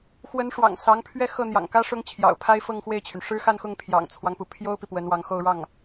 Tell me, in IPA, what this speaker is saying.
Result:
x w ə˧˥ n ʂ w ɑ̰˨˩ ŋ s ɑ˧˥ ŋ pʰ ɥ ɛ˥˧ x ɤ˥˩ n̪ j ɑ̰˨˩ ŋ k ä˥ ʂ ʊ˥ ŋ t͡ɕʰ j ɑ̰˨˩ ʊ̯ pʰ a˥ ɪ̯ f ɤ˥˧ ŋ x w e˥˩ ɪ̯ t͡ɕʰ y˩ n ʂ ɻ̩˥ x a˥˧ n x ʊ˥˩ ŋ pʰ j ɑ̰˨˩ ŋ t͡sʰ w ɑ˦ ŋ p u˩ pʰ j o˥ ʊ̯ p i˨ p w ə˧˥ n w ɑ˧˥ ŋ x o˥˧ ʊ̯ ɻ ɑ˥˩ ŋ

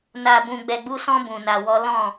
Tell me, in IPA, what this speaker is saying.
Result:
n a˧ b ũ˧ ɡ͡b ɛ˧ ɡ͡b u˦ s ɔ̃˦ b ũ˧ n a˧ w ɔ˦ l ɔ̃˦˨

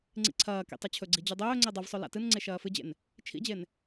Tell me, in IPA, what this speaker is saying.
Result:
ŋ͡ǀ ḭ ǀʰ ɐː k ḭ tˤ ɵ t͡ɕʰ ɵ ɡ͡ǀ i d͡ʑ u dˤ ɵː ŋ͡ǀ e dˤ ɨ v sˤ o l a̰ t ɨ n ŋ͡ǀ e ʃ ɐː f ɨ d͡ʑ ḛ n | t͡ʃʰ ḭ d͡ʑ e n

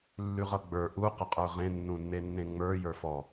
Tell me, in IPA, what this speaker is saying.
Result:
lː ʉ ʁ ʌ ɡ͡b ə˞ ʔ u q ʌ qʼ ə˞ ʁ ẽ nː ũ nː e nː ẽ ŋ͡m ə˞ j ə˞ f ɔ

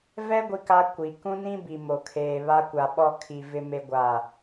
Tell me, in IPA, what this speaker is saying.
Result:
v ɛ˦ ɡʷ i˦ k a˦ kʷ i˨ k ũ˦ n ĩ˦ b i˨ m o˨ kʰ eː˨ β a˦ kʷ a˨ ɓ ɔ˦ kʰ i˨ v ɪ˦ m e˦ ɡʷ a˦˨

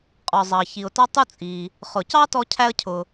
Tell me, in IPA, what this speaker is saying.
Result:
qʼ ɔ˩ zˤ ɑ˩ ç i˩ ʊ̯ t ɑ˥ tˤ u˥ t͡sʼ i˩ | χ ʊ˩ c ɑ˥ t ɔ˥ cʰ æ˥ ə̯ cʰ ʊ˩

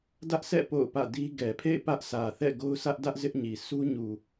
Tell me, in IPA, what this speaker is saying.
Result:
d ä˦ ʔ sʰ ɛ̰˦˨ p o̰˦˨ ʊ̯ p ä̰˦˨ d i˦ ɡ ɛ˨ pʰ ḛ˦˨ ɪ̯ p ä˦ ʔ sʰ ä˨ θ ɛ̰˦˨ ɡ o˦ ʊ̯ sʰ ä˦ ʔ d ä˦ ʔ z ɪ˦ ʔ ɲ i˨ sʰ u˦ ɲ u˨

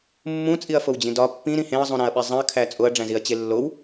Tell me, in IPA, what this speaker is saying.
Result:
mː ũ t͡sʼ i ɐ̯ f o w d͡ʑ ĩ d ɒ pː ĩ ɾ ĩ h ẽ ɐ̯ zˤ ũ ɾ æ̃ ɐ̯ ɓ e zˤ ĩ ɐ̯ kʰ æ t͡sʼ o ɐ̯ ɖ͡ʐ æ̃ z i ɐ̯ t͡ɕ e lː o w

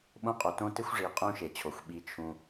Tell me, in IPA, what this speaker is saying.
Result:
ɓ õ˦ qʼ o˨ t õ˦ t ɪ˦ xʷ ʐ i˨ qʼ ũ˦ ʃ e˨ t͡ɕʰ o˨ xʷ ɓ i˧ t͡ʃʰ ũ˧

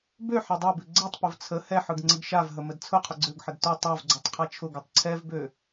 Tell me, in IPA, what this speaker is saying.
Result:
b ø ħ ɛ dˤ ø b ʉ ɡ͡ǀ ɛ tˤ p ʊ v t͡sʰ ə h ɛ ħ ɯ ɡ ŋ͡ǀ ə ɡ ʃ a v ɦ ə m ə d t͡sʰ ʊ qʰ ʊ ɡ͡ǀ ø ɡ ħ ə d t ʊ tˤ ɛ v ɡ͡ǀ ʊ tˤ qʰ a t͡ʃʰ ʊ ɡ ɯ tˤ ǀʰ ɛ v b ø

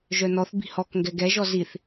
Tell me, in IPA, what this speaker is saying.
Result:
ʒ œ n ɔ θ b i̤ h ɔ k ŋ ɡ ɛ ɡ ɛ ʒ ɔ z i θ

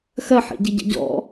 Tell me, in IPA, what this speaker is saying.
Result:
x ɜ ħ ḭ ɟ i ɟ ə̰ ɟ ɔ̰

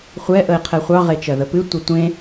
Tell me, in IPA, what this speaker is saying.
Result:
χʷ ɛ ʔ ə e̯ qʰ ɛ χʷ ɑ ʁ e t͡ʃ ɜ ð ə p ɨ tʷ ə tʷ ẽ

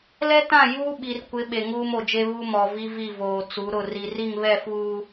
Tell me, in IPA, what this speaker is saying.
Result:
l ɛ˦ t ã˦˨ j uː˦ ɓ i˨ r kʷ ɪ˨˦ ɓ e˨ ŋ uː˦ m o˨ d͡ʒ e˦ β u˦ m ɔ˨ v i˦ v i˦˨ v oː˨ t͡s u˨˦ ɾ ʊ˦˨ r i˨ r i˦˨ ŋ β ɛ˦˨ f uː˨

